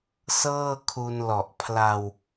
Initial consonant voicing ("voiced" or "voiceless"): voiceless